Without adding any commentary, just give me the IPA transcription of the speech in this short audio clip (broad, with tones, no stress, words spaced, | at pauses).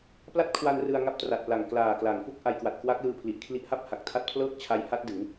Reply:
pla˥˩t̚kʰwa˧n rɯ˧a̯ ŋa˦˥p̚tra˨˩t̚pla˨˩ŋ klaː˨˩kla˩˦ŋfu˥˩k̚ ʔa˧jkwa˨˩t̚kwa˦˥k̚lɯː˧ pʰli˨˩ʔkʰli˦˥ʔha˥˩p̚ ha˨˩k̚tʰa˦˥t̚pʰlɤː˥˩k̚ t͡ɕʰa˦˥jha˦˥t̚ dɯ˩˦ŋ